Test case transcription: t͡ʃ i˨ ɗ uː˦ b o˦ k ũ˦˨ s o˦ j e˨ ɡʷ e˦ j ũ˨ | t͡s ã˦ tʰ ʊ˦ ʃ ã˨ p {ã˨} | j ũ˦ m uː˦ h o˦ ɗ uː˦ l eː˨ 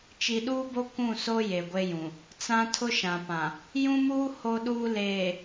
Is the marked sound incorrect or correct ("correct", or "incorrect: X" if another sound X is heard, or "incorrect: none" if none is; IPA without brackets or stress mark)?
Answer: correct